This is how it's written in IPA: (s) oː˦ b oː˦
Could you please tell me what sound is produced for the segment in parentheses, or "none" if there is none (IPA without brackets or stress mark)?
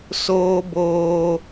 s